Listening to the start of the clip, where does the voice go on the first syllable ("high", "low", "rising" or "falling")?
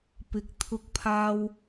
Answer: low